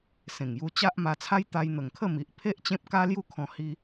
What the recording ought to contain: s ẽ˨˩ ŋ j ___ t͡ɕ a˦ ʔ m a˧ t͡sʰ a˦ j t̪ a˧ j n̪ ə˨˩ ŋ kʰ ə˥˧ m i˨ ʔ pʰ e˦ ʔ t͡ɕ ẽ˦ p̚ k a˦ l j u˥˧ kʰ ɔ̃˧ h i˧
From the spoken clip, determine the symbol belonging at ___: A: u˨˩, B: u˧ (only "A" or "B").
B